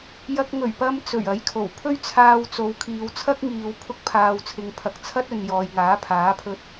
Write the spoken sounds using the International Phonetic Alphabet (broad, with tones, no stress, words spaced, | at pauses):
jɐ˧k̚ŋɵ˨˩ɥpɐ˧m t͡sɵ˨˩ɥɐ˨˥jkʰo˨˩w pʰɵ˥ɥt͡sʰaː˧wt͡so˨˧w kʰiː˨wt͡sʰɐ˥k̚ŋiː˨w pʰʊ˥k̚pʰaː˧wt͡sʰɪ˧ŋpʰɐ˧k̚ t͡sʰɐ˥t̚ ɵ˨n jɔː˨jŋaː˨˥pʰaː˨˥pʰɵ˧t̚